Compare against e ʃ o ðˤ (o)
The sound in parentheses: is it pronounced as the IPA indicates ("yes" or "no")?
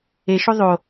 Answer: yes